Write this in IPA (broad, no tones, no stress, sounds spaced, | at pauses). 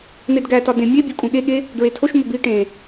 n̪ e d ɡ æ t ɒ d ẽ mʲ e bʲ u kʼ ũ ɠ e ɠ e | d ɹ e tʰ o ʃ m o b i ʈ ẽ